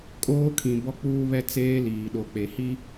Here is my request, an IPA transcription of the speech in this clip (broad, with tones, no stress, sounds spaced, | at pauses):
kʼ oː˦ kʰ ĩ˨ b ɔ˦ k͡p uː˦ β ɛ˦ t͡s eː˦ l iː˨ ɗ o˨ k͡p e˨ h i˦